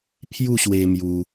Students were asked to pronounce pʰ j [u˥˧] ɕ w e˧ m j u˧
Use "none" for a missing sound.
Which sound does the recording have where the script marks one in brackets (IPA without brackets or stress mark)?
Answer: u˥˧